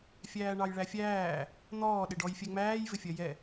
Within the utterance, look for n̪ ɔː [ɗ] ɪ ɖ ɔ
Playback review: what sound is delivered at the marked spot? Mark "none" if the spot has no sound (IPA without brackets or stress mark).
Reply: ɗ